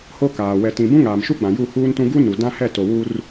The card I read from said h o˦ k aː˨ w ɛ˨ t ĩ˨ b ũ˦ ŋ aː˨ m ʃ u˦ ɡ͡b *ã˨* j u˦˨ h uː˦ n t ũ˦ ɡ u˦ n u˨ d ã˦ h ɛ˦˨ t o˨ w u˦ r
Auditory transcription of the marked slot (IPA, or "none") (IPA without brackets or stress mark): ã˨